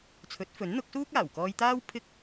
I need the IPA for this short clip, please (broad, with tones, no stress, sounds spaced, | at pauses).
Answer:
t͡sʰ ɵ˨˥ t̚ f ɵ˨˥ n n̪ ʊ˨˥ k̚ s uː˥ k̚ aː˨˩ w k ɔː˧ j t̪ aː˥ w pʰ ɪ˥ k̚